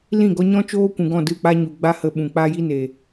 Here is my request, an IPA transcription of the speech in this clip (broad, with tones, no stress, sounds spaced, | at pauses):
l ĩ˦˨ ɡ ɔ˧ ɲ ɔ̃˦ t͡ʃ oː˦ kʷ ũ˨ ɡ ɔ̃˦˨ d ɨ˦˨ k͡p a˦ ɲ u˨ ɡ͡b a˦ h ə˧ ɓ ũ˨ k͡p a˦ j i˦ n e˨